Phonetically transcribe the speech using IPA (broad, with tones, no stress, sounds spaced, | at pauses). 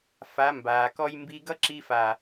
f a˨˦ m b aː˨ k ɔ˦ j m b i˧ ɡ ʌ˦ ǁ i˧ f a˨